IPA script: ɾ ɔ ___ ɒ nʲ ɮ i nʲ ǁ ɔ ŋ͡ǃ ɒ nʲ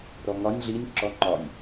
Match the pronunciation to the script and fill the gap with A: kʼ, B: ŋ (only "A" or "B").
B